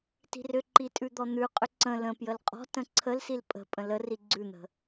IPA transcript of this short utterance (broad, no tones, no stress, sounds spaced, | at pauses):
t i̤ r ʏ ǃ i tʼ ʉ d̪ ɔ n̪ ʉ qʼ ʏ ǀ ə̃ l ə̃ p j ə l qʼ ɔ̤ t ə̃ ǀʰ ə l s i l pʼ ə̤ pʼ ə̃ l ə r i ɡ͡ǀ ʉ n̪ ə̤